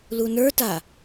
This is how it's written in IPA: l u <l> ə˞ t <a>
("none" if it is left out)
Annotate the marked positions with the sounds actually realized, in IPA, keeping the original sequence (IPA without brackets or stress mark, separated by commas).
n, a